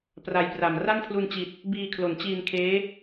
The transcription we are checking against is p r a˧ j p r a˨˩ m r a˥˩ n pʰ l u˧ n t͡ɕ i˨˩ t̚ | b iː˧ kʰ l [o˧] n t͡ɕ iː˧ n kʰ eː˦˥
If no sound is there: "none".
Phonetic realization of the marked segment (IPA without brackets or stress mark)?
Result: o˩˦